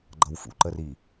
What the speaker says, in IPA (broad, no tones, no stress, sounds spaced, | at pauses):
ɡ͡ǃ ʌ w f ṵ ǃ ə r i